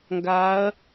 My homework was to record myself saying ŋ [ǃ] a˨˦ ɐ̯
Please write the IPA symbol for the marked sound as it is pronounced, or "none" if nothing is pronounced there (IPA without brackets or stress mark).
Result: ɡ